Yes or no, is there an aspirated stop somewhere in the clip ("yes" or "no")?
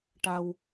no